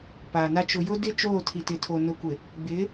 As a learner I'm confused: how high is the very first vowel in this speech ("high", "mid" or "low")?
low